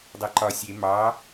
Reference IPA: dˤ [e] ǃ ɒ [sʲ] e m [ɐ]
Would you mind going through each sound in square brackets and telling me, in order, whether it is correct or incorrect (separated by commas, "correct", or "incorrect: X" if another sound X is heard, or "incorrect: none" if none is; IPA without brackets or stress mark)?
correct, correct, incorrect: ɑ